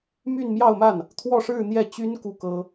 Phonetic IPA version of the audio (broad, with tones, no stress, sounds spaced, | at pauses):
m y˥˧ n m j ɑ˥˧ ʊ̯ m a˥˩ n | t̪ʰ w ɔ˥˧ ʂ ɻ̩˥˧ n̪ j ɛ˥˩ t͡ɕ y˥ n k u˥˩ k ɤ˥